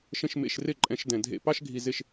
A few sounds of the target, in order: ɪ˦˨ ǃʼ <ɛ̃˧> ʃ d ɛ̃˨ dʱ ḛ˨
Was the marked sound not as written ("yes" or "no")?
no